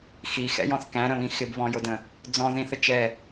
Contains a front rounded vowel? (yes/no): no